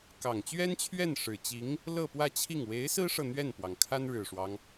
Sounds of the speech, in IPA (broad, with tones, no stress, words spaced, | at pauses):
kɑ˨˩ŋt͡ɕɥɛ˥nt͡ɕʰɥɛ˥˩n ʂɻ̩˨˩t͡ɕi˧˥ŋ | lɤ˥˧pwä˥˧t͡ɕʰi˥˩ŋ we˧˥ɪ̯sɹ̩˥ʂɤ˨ n̪ɥɛ˥˩npwɑ˩ŋ kʰa˥nɻɻ̩˨˩ʂwɑ˦ŋ